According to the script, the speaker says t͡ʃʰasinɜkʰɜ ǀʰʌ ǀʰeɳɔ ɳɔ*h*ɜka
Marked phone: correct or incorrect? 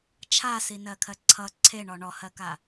correct